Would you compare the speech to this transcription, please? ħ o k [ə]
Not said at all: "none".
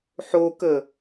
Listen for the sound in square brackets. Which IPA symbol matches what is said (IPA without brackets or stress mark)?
ə